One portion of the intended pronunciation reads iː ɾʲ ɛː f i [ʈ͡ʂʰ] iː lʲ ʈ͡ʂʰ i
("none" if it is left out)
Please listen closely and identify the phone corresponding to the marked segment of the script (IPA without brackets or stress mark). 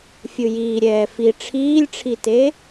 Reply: ʈ͡ʂʰ